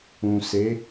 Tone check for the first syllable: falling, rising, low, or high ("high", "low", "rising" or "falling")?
low